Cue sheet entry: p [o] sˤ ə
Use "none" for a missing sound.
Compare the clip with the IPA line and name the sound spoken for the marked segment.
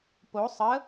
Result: o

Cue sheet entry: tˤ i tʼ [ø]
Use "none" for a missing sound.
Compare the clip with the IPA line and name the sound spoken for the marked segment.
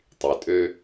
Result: ø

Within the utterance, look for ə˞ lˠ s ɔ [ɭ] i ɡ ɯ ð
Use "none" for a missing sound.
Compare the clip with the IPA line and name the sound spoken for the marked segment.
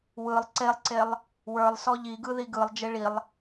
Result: ʎ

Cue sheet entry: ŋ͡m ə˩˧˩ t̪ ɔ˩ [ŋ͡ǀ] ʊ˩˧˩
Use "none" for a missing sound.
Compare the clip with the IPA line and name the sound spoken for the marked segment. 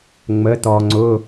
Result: ŋ͡ǀ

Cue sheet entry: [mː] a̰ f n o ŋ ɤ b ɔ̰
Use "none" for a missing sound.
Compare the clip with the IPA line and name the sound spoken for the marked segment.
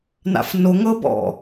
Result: n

